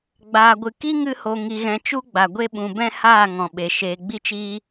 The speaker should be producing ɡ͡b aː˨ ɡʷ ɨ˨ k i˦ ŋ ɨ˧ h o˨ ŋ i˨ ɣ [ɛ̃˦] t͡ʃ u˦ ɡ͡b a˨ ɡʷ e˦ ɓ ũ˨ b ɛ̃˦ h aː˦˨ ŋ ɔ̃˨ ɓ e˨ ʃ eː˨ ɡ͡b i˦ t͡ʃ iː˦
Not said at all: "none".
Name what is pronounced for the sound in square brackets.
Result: ɛ̃˨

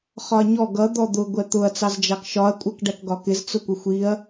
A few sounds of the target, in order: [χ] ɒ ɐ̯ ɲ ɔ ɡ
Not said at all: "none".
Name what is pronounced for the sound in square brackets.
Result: χ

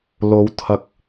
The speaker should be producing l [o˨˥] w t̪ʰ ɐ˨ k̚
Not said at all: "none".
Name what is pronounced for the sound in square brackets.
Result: o˨˧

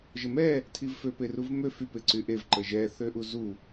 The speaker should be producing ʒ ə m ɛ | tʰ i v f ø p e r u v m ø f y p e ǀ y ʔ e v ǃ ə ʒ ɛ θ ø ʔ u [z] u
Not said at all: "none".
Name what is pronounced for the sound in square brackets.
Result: z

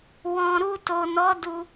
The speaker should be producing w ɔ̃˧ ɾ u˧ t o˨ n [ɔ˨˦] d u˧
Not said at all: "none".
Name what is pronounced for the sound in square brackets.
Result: ɔ˨˦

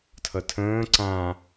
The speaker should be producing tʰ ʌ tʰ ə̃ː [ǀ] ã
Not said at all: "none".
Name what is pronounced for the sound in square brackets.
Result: ǀ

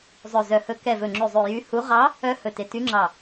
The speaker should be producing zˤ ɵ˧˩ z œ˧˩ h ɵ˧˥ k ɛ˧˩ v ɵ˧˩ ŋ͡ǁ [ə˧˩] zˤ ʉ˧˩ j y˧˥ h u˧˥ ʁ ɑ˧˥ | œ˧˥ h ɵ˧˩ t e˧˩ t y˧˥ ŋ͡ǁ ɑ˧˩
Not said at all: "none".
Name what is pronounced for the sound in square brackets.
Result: ʉ˧˩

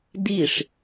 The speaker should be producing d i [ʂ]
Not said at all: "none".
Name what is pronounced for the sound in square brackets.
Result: ʂ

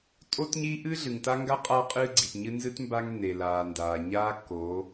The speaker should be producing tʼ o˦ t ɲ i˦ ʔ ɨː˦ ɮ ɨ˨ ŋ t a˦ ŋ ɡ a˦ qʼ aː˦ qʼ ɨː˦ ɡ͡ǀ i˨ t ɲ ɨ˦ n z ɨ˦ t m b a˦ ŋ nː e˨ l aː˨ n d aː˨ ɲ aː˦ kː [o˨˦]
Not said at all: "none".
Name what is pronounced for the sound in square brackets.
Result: o˨˦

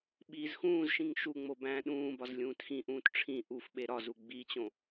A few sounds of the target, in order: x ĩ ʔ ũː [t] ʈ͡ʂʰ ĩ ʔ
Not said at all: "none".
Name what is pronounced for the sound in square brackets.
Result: t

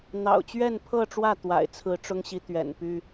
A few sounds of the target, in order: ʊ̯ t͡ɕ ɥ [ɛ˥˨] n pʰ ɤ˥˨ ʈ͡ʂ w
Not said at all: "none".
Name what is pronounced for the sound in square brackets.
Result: ɛ˥˨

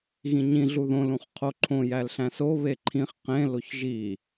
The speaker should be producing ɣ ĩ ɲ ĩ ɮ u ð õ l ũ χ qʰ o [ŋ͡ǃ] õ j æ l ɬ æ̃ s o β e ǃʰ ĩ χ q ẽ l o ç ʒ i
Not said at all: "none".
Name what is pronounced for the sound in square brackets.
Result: ǃʰ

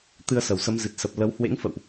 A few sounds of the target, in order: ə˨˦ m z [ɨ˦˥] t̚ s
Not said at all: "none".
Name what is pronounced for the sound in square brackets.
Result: ɨ˨˩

